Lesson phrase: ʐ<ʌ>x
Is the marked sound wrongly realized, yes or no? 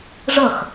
no